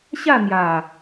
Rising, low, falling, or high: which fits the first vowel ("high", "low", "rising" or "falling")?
falling